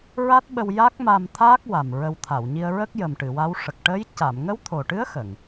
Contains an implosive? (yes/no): yes